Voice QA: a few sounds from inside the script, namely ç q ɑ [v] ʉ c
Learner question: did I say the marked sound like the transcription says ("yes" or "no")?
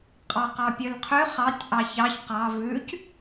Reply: yes